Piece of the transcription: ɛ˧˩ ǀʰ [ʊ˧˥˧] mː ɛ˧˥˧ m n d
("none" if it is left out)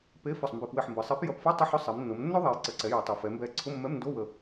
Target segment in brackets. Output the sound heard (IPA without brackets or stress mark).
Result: ʊ˧˥˧